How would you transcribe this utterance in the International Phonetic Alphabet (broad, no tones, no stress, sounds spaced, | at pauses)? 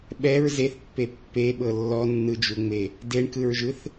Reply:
ɓ ɛ ɹ z e θ pː e pː e ɓ ɤ lː ɔ nː ɯ d͡ʒ u ŋ͡m e | d e ɳ k ɯ ɹ ʒ ɯ θ